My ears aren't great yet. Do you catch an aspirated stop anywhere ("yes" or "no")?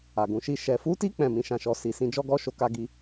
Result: no